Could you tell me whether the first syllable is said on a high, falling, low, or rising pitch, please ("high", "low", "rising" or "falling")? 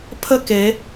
falling